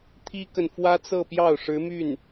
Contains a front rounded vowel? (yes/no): yes